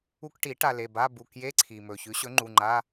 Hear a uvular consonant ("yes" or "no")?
no